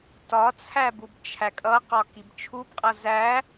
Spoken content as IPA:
t ɒ t͡sʰ æ b u b t͡ʃʰ æ kʼ ʌ q ɒ k i b t͡ʃʰ u b qʼ ʌ z æ

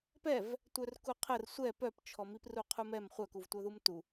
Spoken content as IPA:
p ɛ v | tʷ œ r k u qʰ ə r sʷ ɛ p œ p t͡ʃʰ ɔ m i p r u qʰ u m ɛ m χʷ œ k u v tʷ œ ð u m t u

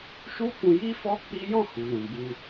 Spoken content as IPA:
ʃ u˦ k ũ˧ j i˦ f ɔ˦ k͡p i˦ j ɔ̃˦˨ h u˨ l ũ˨ b u˧

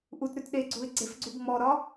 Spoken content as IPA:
ʔ u t ɾ ʉ t ɗ e ɡ͡ǀ u ɪ̯ ɡ͡ǀ e f ɡ͡ǀ u ɡ ŋ͡m ɔ ɾ ɒ

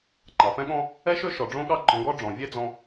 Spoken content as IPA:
ŋ͡ǃ ɑ˩ f ɛ̃˥ ɠ ɔ̃˥ | ɛ˥ ʃ ø˥ ʃ ɔ˩ ɖ͡ʐ õ˥ ɠ ɑ˥ ɡ͡ǃ ɔ̃˧ ɡ ɔ˥ ɖ͡ʐ ɔ̃˩ vʲ ɛ˥ d͡z ɔ̃˧

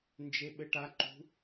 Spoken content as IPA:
n d͡ʒ e ɓ ɘ ʈ a ǃ ṳ

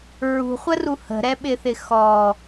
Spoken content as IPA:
ɹ ṳ χʷ ə r u h ə̤ ɾ ɛ ɓ ɪ θ ɪ x ɔ

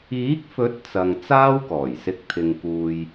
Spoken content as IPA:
iː˨˥ k̚ f ɵ˨˥ t̚ t͡s ɐ˨ ŋ t͡s aː˥ w k ɔː˨˩ j s ɪ˧ k̚ t̪ʰ ɪ˧ ŋ k uː˧ j

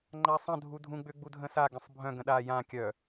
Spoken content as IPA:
ŋ͡ǃ a sˤ ə̃ dʱ u dʱ ũ ɡ͡b ʏ ɡ͡b u dʱ ə̃ s a ɡ ə̃ sˤ bʱ œ̃ ɡ ə̃ ɗ a j ã kʲ œ

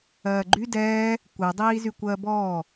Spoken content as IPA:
ɜː ɡ͡ǃ y d ɛː | kʷ ɛ dˤ iː z y kʷ ɜː b ɔː

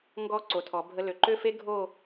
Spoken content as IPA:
ŋ ɡ ɔ˧˩ ǀ o˩˧ tʰ ɔ˩˧ bʱ ə˧ l ø˩˧ ǃ ø˥˧ f e˥ ɡʱ o˥˧

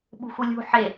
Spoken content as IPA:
ɓ ṳ x u lʲ ṳ ħ e

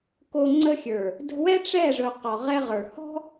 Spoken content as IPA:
k o˧ ŋ͡ǀ ə˧ xʲ ə˞˨ | d ə̤˧ w ɛ˦ ʈ͡ʂ ɛ˦˨ ʐ ɵ˧ q ɔ˨ ʁ ɛ˦ ʁ ə˞˨ h ɔ̤˦

